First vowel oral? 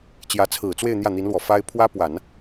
yes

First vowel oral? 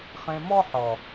no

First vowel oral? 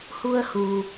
yes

